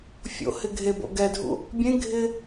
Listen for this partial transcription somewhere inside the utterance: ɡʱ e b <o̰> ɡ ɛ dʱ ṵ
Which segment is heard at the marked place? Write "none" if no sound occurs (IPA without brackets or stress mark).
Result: o̰